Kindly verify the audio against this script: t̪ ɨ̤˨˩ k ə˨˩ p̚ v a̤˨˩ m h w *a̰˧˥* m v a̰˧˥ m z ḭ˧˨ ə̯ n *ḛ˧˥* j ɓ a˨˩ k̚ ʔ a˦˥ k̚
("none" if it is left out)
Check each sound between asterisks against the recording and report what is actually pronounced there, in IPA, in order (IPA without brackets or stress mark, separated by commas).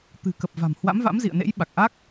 a̰˧˥, ḛ˧˥